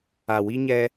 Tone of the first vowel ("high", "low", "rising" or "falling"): low